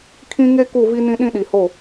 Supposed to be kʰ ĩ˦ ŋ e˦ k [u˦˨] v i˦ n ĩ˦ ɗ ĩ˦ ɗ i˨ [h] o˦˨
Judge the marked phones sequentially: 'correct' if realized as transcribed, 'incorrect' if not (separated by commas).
correct, correct